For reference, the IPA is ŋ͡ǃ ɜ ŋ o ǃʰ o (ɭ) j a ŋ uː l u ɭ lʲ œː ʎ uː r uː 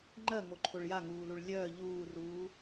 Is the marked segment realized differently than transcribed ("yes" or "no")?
no